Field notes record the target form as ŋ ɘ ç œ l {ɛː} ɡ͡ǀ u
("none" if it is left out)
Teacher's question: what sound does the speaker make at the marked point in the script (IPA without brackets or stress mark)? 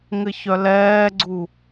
ɛː